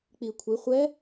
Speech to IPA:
k͡p i kʷʰ i χʷ ɛ

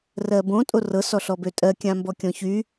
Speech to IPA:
r ɜ b õ tʼ o r ɤ s ɔ ɬ ɔ b ø tʼ ɜ kʲ ã m b ɔ kʲ ɔ̃ ç y

